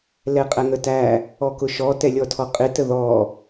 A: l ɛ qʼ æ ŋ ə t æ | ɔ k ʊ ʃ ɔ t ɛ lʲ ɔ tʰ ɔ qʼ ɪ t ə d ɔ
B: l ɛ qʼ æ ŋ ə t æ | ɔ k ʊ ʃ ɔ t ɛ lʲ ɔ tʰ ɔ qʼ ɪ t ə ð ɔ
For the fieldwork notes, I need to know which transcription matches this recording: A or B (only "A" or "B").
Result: B